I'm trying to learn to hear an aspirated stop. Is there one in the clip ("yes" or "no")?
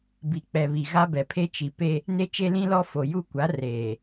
yes